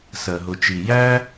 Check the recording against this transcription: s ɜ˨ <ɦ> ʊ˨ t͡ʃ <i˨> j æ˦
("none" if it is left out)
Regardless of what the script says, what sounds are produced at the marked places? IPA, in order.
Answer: ɦ, i˨

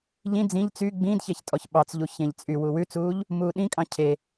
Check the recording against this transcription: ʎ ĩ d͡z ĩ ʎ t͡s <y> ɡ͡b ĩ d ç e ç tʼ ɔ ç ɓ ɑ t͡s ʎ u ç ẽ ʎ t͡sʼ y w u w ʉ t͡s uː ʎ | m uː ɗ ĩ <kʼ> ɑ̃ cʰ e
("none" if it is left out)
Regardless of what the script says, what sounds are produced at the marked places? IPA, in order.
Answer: y, kʼ

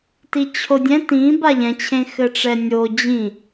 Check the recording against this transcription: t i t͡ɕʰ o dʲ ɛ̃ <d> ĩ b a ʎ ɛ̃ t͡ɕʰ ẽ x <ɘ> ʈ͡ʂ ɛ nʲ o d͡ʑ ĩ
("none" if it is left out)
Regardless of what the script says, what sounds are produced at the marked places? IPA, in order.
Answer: t, ɘ

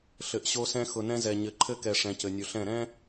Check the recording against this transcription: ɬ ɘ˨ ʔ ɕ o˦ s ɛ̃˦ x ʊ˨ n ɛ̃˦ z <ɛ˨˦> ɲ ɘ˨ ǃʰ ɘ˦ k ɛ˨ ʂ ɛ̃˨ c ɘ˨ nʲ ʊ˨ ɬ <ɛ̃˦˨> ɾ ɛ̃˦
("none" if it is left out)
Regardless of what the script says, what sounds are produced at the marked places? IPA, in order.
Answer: ɛ˨, ɛ̃˦˨

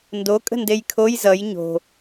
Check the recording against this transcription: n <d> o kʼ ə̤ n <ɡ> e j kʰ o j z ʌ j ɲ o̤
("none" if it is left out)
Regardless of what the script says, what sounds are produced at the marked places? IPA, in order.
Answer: d, d

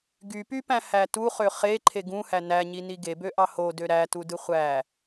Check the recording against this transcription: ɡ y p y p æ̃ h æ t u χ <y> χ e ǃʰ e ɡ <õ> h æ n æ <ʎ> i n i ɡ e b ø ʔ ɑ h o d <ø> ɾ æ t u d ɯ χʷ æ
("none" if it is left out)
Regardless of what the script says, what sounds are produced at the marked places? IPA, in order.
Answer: ø, ũ, ɲ, ø

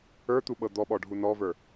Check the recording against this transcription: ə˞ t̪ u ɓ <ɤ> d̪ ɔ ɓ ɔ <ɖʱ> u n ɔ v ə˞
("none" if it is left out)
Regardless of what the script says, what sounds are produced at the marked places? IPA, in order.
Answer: ɤ, ɖʱ

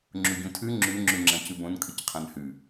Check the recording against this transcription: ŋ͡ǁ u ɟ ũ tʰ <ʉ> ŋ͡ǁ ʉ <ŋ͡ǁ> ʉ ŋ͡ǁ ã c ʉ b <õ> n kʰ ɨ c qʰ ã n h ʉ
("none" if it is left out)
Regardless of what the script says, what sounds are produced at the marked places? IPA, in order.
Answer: ʉ, ŋ͡ǁ, õ

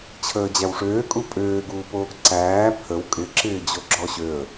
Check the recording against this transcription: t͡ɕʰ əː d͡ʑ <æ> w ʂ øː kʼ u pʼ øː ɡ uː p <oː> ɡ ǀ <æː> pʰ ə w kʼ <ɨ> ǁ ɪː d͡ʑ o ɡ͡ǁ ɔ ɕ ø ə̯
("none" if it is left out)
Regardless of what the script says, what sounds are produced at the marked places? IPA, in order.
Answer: æ, oː, æː, ɪ

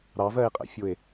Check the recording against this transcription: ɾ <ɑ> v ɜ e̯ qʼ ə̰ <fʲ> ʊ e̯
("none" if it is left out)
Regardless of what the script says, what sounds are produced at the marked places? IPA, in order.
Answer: ɑ, fʲ

